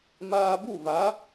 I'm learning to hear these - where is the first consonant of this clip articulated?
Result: lips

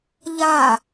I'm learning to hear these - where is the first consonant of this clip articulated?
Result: palate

